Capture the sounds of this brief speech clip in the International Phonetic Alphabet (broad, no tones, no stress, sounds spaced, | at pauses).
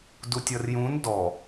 d u tʲ ʌ r j ũ n d ɔ